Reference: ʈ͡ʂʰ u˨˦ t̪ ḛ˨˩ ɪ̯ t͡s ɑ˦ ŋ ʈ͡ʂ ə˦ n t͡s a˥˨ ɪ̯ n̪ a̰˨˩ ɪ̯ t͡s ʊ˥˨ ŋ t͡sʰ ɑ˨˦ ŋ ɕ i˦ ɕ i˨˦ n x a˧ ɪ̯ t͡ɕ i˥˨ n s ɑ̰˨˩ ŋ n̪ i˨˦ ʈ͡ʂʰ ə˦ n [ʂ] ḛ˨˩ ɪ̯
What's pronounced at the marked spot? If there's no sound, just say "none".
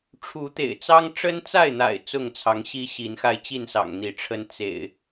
t͡s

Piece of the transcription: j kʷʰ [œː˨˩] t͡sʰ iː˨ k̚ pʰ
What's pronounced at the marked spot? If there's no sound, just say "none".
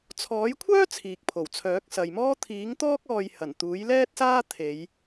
œː˥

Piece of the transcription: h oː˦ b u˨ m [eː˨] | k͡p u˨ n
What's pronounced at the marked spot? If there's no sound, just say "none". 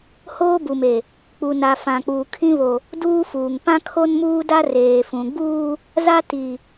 e˨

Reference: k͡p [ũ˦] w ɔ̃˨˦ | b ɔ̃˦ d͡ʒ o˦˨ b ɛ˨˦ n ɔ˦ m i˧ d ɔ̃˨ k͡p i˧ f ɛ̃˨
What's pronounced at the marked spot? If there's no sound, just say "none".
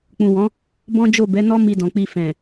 ũ˨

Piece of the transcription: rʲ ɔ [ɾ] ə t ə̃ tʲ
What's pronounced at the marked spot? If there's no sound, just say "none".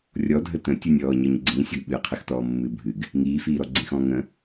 dʱ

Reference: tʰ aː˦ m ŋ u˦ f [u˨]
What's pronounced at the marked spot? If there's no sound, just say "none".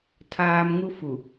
u˨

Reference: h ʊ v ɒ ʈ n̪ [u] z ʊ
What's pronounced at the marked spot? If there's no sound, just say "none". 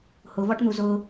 u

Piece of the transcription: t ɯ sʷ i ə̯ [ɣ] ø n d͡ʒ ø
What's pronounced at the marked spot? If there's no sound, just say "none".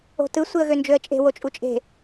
ɣ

